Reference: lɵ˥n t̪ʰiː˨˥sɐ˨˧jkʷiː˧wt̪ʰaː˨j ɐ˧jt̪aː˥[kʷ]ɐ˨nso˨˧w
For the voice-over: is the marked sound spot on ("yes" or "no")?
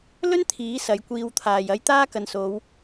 no